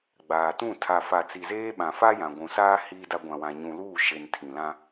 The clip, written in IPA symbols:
ɡ͡baː˨tũ˦˨ tʰa˨fa˨ t͡si˨zeː˦ɓã˨ fa˦jã˨ɡʷũ˨saː˦ hiː˦da˦ ɡʷã˨wã˨ɲũ˨luː˦˨ ʃe˨n tʰĩ˨lã˦

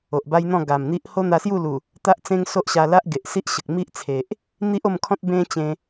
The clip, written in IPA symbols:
o˨ʔba˦jn̪ɔ̃˥˧ ɡa˨˩mn̪i˦ʔ ho˦n̪a˧sju˥˧lu˨˩ | t̪a˦ʔt͡sẽ˦ŋso˦ʔɕa˧ la˦ʔɡe˨ʔsi˦ʔɕə˨k̚ mi˦ʔt͡sʰe˨ʔ | n̪i˦ʔo˥˧mkʰɔ̃˦t̚ bẽ˦t͡ɕẽ˧

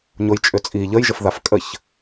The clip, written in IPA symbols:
ɲojt͡ʃʼʏt͡sʼi ʎəjʒəfðaf kʼəç

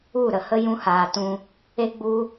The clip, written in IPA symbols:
u˦˨ɾə˨hə˦ jũ˧haː˨tũ˧ | e˦ɡ͡bu˦

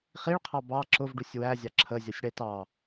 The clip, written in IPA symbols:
χiɭqʰɑ bɑ ǁʊvɖusʲ wæzʲɑ ǁʰəzʲʌsʲ ɽɛtɑ

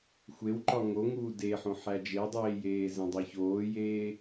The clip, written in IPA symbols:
xʷewǃɒ ŋoŋuː deħõ ħæd͡ʒedˤeːjeː zẽdˤeçoːjeː

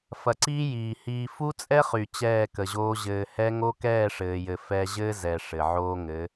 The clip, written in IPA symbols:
fɐ˨ǀiː˦ jiː˨ hiː˨fu˦t͡sʼɛ˦ χy˨ t͡ɕɛː˦˨kə˨ʑoː˦ ʑɘː˨hɛ˦ ŋo˦kɛː˦˨ʂɘː˨jɘ˨ fɛ˦ ʑɘː˦zɛ˨ ʂɘ˨ʕoː˦ŋɘ˨˦

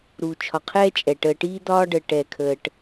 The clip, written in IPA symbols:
ɾuː˨t͡ʃʰɒ˨qʰɛː˦t͡ʃʼɛ˨ ʈəː˨ʈiː˦d̪ɒː˦ɖəː˨ ʈɛ˨kʰəː˨ʈ

